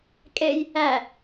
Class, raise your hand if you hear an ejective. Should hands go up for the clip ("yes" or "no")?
yes